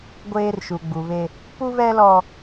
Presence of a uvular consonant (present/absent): absent